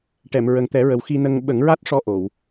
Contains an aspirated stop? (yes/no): no